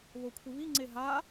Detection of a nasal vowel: absent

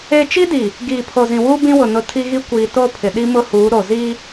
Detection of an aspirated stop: present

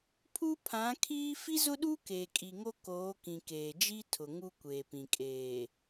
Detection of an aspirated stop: present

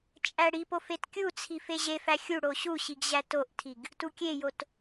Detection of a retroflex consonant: present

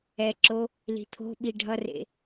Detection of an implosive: present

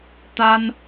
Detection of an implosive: absent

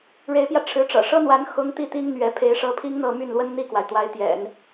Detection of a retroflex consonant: present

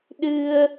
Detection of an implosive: present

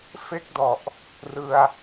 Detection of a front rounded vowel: absent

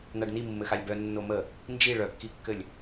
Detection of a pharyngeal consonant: absent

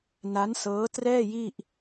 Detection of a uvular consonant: absent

